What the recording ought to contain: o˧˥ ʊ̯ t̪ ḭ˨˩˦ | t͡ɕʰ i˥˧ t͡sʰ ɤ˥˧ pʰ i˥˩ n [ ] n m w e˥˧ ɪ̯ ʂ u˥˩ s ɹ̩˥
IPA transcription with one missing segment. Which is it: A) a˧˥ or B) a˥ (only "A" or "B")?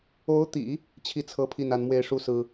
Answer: A